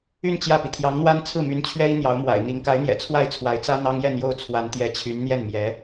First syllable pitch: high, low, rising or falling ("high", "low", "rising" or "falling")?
falling